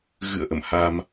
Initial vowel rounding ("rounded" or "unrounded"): unrounded